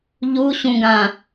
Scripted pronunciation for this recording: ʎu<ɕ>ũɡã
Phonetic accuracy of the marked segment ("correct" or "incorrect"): correct